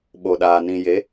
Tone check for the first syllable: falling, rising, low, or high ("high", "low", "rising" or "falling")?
low